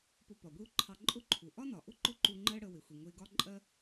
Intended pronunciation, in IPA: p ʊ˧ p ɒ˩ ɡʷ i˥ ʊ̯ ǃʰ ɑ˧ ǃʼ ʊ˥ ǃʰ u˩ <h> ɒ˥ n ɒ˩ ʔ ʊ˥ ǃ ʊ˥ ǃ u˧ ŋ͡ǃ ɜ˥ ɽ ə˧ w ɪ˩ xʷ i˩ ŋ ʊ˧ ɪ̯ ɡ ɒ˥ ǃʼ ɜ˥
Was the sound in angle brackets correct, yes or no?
no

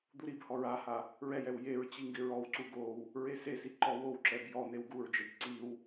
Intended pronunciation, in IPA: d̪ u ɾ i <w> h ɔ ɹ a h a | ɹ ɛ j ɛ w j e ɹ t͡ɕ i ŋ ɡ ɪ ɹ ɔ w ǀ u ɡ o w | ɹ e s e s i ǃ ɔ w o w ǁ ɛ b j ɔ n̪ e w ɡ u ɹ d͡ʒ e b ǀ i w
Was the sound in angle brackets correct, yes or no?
no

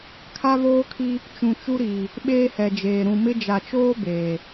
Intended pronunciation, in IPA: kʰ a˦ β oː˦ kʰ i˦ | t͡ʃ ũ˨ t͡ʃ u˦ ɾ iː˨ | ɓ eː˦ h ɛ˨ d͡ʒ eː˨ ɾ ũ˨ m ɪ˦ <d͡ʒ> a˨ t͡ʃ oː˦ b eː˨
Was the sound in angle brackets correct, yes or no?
yes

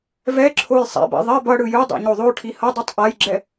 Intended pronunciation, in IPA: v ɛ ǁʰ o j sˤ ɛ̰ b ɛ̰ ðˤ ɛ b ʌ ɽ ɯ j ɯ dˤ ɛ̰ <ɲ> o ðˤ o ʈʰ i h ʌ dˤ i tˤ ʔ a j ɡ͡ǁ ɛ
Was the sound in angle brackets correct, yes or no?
yes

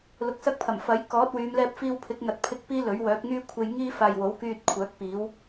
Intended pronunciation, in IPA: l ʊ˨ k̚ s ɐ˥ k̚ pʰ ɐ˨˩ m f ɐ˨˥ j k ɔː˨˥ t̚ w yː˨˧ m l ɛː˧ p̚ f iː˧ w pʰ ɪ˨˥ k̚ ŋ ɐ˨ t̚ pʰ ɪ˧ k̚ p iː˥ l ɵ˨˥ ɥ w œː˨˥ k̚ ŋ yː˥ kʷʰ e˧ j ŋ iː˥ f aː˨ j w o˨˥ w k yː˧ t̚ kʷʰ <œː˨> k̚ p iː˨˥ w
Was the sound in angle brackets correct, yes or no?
no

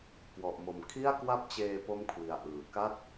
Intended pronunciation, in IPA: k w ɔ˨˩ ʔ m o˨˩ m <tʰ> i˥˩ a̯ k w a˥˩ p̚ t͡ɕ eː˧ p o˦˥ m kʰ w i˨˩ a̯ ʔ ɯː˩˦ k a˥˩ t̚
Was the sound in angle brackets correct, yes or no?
no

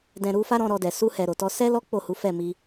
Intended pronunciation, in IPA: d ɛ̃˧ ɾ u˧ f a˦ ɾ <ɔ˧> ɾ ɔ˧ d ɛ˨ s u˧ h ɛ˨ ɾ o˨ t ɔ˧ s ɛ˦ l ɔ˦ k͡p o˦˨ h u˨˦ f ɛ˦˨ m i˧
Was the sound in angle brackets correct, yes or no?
no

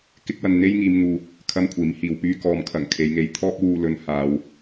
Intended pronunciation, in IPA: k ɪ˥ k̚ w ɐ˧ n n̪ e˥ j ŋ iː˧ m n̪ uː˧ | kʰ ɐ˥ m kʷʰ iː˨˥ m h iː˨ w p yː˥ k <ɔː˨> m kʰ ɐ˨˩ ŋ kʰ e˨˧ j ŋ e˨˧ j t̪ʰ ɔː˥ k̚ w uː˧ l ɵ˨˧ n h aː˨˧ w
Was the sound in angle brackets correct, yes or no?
yes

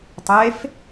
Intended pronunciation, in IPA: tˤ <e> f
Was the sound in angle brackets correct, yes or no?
yes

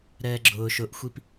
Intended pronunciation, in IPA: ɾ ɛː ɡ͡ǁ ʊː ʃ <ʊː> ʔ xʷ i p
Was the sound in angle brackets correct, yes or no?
no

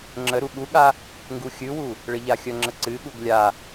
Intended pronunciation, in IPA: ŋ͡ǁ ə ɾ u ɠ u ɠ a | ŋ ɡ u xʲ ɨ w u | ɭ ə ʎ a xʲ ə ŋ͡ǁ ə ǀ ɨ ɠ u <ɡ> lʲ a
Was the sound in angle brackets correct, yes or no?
yes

